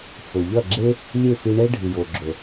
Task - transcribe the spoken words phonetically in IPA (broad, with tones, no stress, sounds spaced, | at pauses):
f ɵ˨ ʎ ɐ˦˨ ɡ͡ǁ e˦ | lʲ e˦˨ f i˧ ɳ e˦ ɖʱ ɨ˨ j o˨ ɡ͡ǁ ɵ˨